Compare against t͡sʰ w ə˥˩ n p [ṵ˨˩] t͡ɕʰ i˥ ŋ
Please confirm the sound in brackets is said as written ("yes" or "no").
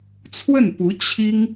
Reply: no